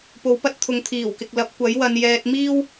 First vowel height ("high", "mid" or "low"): mid